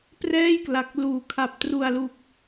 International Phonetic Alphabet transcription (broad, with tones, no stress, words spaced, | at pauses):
prɛː˥˩jkla˨˩k̚ luː˩˦kʰa˨˩p̚ tru˨˩a̯lu˨˩k̚